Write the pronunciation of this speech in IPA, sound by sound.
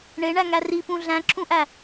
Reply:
ɳ e ɳ æ ŋ æ r i p ũ ɮ æ̃ ǁ ũ ʔ æ

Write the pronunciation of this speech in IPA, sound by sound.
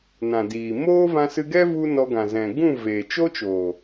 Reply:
n ã˨ d iː˨ m oː˦ v ã˧ s ɨ˧ ɡ ɛ˦ v u˦ n ɔ˧ ɡ ã˨ z ɛ̃˨ ɡ ũ˦˨ v eː˨ t͡ʃ o˦ t͡ʃ oː˨

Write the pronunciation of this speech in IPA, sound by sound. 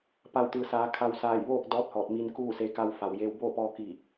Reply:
p a˧˩ w t̪ ɯː˩ s aː˩˧ kʰ a˧ w s aː˧˩ j ʋ oː˥˨ k̚ d ɔː˧˥ t̚ h ɔː˧˩ t̚ m i˧ n k uː˥˨ s e˧ k a˧ w f a˩ w j eː˧ w b oː˥˨ p ɔː˧ k i˧˩

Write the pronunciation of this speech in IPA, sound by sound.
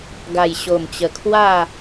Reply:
ɡ a˨˩ j ɕ o˨˩ m t͡ɕ ə˨˩ kʰ w a˥˧

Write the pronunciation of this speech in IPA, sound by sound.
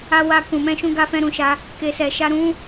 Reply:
a˧ w a˧ k ũ˨ m ɛ̃˧ ʃ ũ˧ ɡ a˧ f ɛ̃˧ ɾ ũ˨ ʃ a˧ | k e˨ s ɛ˨ ʃ a˧ ɾ ũ˦

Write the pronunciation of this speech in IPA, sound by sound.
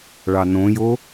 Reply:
ɭ ɑ n õ j o

